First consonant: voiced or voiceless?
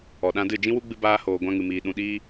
voiced